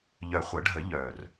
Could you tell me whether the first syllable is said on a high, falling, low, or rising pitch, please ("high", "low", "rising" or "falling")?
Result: low